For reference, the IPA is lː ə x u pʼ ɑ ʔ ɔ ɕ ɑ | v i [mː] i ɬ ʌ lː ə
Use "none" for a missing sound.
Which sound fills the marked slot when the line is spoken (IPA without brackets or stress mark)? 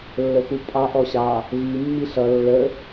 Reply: mː